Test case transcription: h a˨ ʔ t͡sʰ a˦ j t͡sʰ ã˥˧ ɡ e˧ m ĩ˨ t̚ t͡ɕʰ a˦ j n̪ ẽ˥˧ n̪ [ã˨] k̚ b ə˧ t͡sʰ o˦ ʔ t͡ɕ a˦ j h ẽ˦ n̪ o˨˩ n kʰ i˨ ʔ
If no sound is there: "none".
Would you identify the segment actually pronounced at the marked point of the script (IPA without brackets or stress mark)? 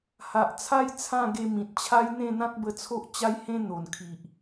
ã˦